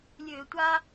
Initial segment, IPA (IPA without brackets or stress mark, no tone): lʲ